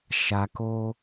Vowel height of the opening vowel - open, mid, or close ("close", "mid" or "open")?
open